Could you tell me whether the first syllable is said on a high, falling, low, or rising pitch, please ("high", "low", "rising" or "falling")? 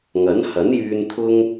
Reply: rising